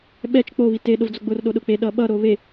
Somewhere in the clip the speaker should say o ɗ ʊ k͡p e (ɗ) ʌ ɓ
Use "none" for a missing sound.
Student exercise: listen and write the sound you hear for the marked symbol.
ɗ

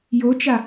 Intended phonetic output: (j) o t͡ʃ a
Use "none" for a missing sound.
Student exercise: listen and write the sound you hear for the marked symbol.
j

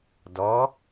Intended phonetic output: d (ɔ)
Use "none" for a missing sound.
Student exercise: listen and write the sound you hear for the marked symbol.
ɔ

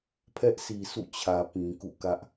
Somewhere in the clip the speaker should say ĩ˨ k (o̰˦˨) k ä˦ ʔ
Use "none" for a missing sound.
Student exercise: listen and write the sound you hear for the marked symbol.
ṵ˦˨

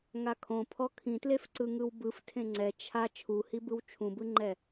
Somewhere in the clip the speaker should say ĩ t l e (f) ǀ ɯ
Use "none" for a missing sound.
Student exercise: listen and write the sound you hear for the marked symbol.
f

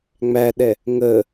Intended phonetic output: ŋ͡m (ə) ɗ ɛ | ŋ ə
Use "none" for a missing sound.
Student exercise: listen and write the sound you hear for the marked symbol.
æ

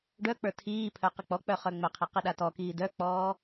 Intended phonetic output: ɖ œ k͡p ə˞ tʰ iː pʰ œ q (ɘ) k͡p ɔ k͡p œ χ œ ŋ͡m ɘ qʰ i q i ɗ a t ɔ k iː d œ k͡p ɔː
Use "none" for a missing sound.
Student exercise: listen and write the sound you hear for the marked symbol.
ɘ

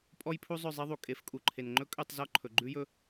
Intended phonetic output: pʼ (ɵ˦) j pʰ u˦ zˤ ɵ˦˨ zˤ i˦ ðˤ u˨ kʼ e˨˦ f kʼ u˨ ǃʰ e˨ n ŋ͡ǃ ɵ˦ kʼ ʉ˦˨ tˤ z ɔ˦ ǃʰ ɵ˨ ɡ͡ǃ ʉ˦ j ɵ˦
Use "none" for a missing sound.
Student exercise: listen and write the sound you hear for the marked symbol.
ɔ˦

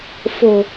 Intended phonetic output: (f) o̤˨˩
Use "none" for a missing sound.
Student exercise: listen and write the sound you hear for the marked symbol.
f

